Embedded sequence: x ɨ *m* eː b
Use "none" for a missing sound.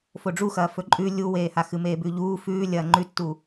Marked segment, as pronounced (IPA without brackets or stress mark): m